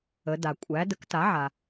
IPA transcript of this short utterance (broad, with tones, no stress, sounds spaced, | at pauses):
ə˩˧ d a˩ kʷʼ æ˩˥ d ə˩˥ k t a˩˥ ʕ a˩